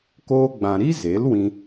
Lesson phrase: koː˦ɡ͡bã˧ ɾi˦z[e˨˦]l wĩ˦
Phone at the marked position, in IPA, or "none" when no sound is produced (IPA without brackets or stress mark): e˨˦